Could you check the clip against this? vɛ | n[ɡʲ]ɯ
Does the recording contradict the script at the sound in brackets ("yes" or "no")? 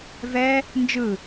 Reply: yes